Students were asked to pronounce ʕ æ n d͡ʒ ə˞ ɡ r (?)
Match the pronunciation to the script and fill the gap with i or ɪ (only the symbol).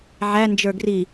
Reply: i